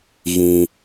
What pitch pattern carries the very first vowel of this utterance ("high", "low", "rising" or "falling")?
high